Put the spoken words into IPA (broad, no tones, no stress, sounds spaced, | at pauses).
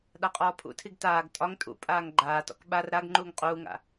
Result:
ɗ a qʼ ɔː pʰ ṵ tʰ i ɡ t aː ɡ tʼ ɒ ŋ tʼ ṵ pʼ aː ŋ ɡ͡ǃ aː t ɔ̰ k ɓ a r ɾ a ɡ ŋ͡ǃ uː ŋ qʼ uː ŋ a̰